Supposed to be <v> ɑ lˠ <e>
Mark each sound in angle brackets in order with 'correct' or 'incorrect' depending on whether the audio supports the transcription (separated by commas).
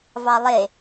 correct, correct